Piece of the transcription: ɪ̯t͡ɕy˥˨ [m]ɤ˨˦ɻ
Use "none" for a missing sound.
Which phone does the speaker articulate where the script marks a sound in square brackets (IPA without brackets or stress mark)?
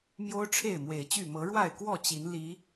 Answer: m